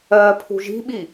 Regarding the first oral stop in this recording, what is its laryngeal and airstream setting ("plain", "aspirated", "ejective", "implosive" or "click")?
aspirated